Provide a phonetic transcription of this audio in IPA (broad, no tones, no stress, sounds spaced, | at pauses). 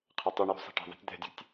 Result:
qʰ ɘ tˤ u ɳ j ṳ sˤ i̤ ʈ ɛ̤ ðˤ ɛ̤ tʲ d̪ ɛ̤ dʲ ṳ tʲ